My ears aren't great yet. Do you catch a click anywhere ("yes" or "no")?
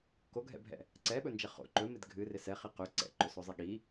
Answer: yes